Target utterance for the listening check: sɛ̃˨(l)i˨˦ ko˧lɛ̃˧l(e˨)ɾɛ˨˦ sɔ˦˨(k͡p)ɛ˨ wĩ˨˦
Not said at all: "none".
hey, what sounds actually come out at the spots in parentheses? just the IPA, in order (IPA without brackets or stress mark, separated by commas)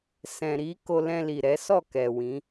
ɾ, i˨, k